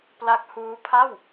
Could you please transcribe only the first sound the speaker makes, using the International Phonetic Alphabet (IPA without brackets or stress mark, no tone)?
p